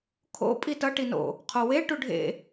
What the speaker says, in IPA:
kʰ o̰ pʼ i t ʌ ʈ i n o̰ | qʰ o w e ʈ u ɖʱ ḛ

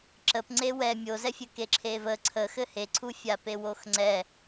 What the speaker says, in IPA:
ǁ ə p ŋ͡ǀ e w ɛ mʲ o z ɛ fʲ ɘ k e ǁʰ e v ə ǀʰ ə x ɘ h e ǀʰ u fʲ a p e w o x ŋ͡ǀ ɛ

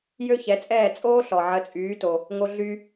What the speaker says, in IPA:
j ø˥ ç ɛ˩˥ t͡sʼ ɛː˥˩ t͡sʼ oː˥ ɬ ɔ˩ ʕ ə˩˥ t͡sʼ yː˩˥ t o˩ | ŋ o˧ ɮ y˧

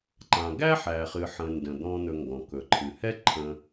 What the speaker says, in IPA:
ǃ ã˩ ɡ æ˥ ħ æ˩ χ ɨ˩ ħ ə̃˩ n d ə̃˩ d̪ ɔ̃˨ n̪ ɵ˨ ŋ ɡ ɔ̃˩ k ɵ˩ ǃʰ ɨ˩ h ɛ˦ ǃʰ ə̃˨

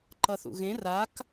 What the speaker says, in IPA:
ǃ ʌ θ ṵ ɣ ẽ r a k

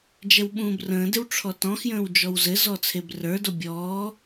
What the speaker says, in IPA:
d͡ʒ ɛ w ɓ ũː b r ə̃ː d ɪ w ʈ͡ʂʰ ɔ t ɔ̃ x j ə̃ː w d͡ʒ ɔ w z ɘ z ɔ t͡sʰ e b r ə˞ d o bʲ ɔː

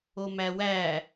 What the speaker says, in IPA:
o m æ w æ

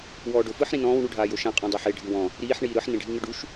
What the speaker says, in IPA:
w ɔː ɖ o f ɯ ħ ɾ ĩ n ɔ̃ː w ɳ u ɖʱ aː j o ʃ ã qʼ ɔ̃ dˤ ɛ ħ e ɖʱ ɯ w ɔ̃ | ɾ iː ħ ɳ iː ɾ ɯ ħ n ẽ ɖʱ i ŋ ɯ ɖ u ʃ

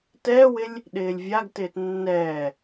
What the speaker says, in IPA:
t ɛː w ɪ lʲ | ɗ ɪː lʲ vʲ a ɡ t ɪː t nː ɛː

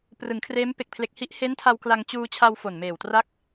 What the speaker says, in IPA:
p r ɯ˩˦ ŋ kʰ r eː˦˥ m p e˨˩ k̚ pʰ l e˨˩ k̚ h i˦˥ ʔ h e˦˥ n tʰ a˧ w k l a˧ ŋ t͡ɕ uː˧ t͡ɕʰ a˧ w f o˨˩ n m eː˨˩ w t r a˦˥ k̚

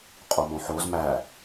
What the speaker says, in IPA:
qʼ o m õ ħ o z m æ

